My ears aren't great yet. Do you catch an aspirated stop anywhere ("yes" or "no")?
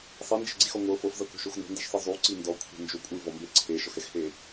yes